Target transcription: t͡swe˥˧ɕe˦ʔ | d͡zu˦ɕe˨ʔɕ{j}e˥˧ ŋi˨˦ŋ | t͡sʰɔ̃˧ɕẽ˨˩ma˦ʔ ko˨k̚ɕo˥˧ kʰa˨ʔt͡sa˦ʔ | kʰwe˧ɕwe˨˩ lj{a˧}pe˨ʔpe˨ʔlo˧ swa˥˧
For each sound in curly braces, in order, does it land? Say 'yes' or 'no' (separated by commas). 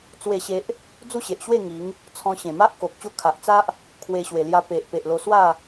no, yes